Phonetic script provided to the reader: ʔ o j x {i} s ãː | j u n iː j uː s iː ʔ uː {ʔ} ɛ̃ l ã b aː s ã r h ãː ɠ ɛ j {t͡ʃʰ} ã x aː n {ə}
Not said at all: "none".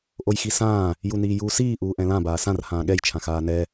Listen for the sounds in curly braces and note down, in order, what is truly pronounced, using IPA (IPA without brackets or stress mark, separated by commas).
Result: i, ʔ, t͡ʃʰ, ɛ